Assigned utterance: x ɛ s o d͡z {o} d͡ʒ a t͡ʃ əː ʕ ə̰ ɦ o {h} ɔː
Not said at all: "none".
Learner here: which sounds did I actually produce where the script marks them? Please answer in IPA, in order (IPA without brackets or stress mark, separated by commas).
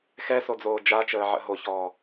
oː, ç